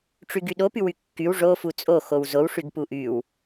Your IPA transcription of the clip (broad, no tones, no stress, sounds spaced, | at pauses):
ʈ͡ʂ y ɡ y ɗ o p y w y kː y w ʐ o f u t͡sʼ o x o w z o w ʂ y ɡ p u ʔ y w